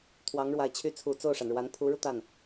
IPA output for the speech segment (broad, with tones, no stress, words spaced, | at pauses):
t̪ʰwɑ˧˥ŋɻwa˨˩ɪ̯t͡ɕʰy˥ t͡sʰu˨˩t͡so˥˩ʊ̯ʂa˩nɻwa˧˥n pʰu˧˥ɻu˧t̪a˥˩n